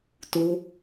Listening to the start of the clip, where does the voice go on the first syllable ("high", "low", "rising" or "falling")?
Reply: high